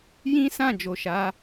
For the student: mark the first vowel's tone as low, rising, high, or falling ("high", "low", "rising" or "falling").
high